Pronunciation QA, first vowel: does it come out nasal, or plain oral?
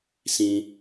nasal